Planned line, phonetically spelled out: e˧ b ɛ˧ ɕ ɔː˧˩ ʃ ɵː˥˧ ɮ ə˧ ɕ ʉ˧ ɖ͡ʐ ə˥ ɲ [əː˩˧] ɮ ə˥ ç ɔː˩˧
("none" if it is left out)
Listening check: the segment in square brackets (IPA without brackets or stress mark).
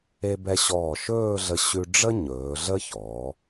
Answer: ɵː˩˧